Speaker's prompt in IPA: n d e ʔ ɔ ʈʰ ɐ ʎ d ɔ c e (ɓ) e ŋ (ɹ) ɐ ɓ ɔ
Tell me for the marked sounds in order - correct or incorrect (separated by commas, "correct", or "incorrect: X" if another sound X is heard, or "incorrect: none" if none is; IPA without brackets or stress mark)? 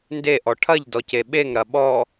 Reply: correct, incorrect: ɾ